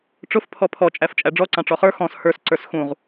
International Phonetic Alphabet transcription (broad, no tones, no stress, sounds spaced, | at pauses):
ʈ͡ʂ ʊ f pʰ ɔ pʰ ɔ t͡ʃʼ æ f t͡ʃʼ æ ɖ͡ʐ ɔ ǀ ɑ̃ ʈ͡ʂ ɔ χ ə˞ x ɔ̃ s h ə˞ s ǀ ə˞ s x ũ ʁ